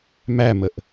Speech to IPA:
m æ m ə ʔ

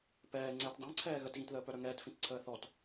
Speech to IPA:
p ɛː ŋ͡ǀ ɛː t dˤ ã ǀʰ ɛː ɣ ə t ɣ ĩ t ð əː p œ ɾ œ ŋ ɛː t f ĩ t ǀʰ əː θ ɔ t

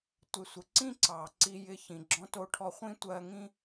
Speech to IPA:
tʷ ɪ˧ sʷ ɪ˧ ǀ ĩ˥ ǀ ɑ˩ ǀ i˧ j ɪ˧ ç ĩ˩ ɡ͡ǁ ɔ̃˧ t o˧ ʈʰ ɔ˧ χʷ ĩ˥ tʷ ɜ˧ ŋ ĩ˥

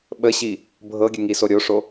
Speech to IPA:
ɓ ə ɕ i | bʱ ɤ ɡʲ ə ŋ i s o ɾʲ o ʂ o

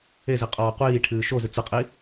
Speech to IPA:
e z i qʼ ɔː qʷ iː ʈʰ ɨː ʃ o z ɨ t͡s ɨ qʼ i

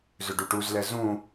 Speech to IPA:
z ʏ ɖ u ʈ u z l ɛ z ũ

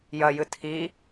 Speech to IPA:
j ɐ j ɨ tʰ i

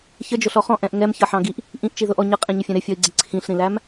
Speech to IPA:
ç ə d͡ʒ ʊ ɬ ɔ χ ɔ̃ ʔ ɛ̃ ʔ ŋ ɛ m ç ʌ ħ ɑ̃ ɡ i ʔ | ʔ ĩ ʔ t͡ʃ i ð ʊ ʔ ɔ ɲ ʌ qʼ ĩ ɲ ə fʲ ɛ̃ ɾ ɪ fʲ ɔ i̯ ɡ͡ǀ ɪ ǀʰ ĩ ɬ ɾ ĩ l æ m

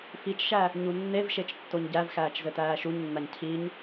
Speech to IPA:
f i t͡ʃ ʃ æ | ɲ u nː e v ʃ e t͡ʃ tː o ɲ ɟ æ v x æː t͡ʃ z ɘ t æː ʃ u ɲ nː a ɲ cʰ i ɲ

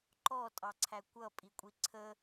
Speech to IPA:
ǃ ɔ tʼ ɑ ǀʰ æ kʷ ʌ pʼ i kʷʼ i ǀʰ ə

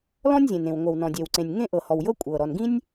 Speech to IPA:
l ɔ̃˥ nʲ zʲ ẽ˩ n ẽ˩ w ŋʷ ɤ˩ w n ɔ̃˩ dʲ e˩ w ǀ ẽ˩ nʲ ŋ ẽ˥ ʔ ɤ˩ h ɔ˩ w j ɤ˥ kʷʼ ɤ˩ ɾ ɔ˩ n ɡ ĩ˥ nʲ

